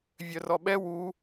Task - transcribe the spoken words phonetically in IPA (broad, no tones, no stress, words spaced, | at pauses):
vʲœrɔɓɛ wu